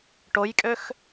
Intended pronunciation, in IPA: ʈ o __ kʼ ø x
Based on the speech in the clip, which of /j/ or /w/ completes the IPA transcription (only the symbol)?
j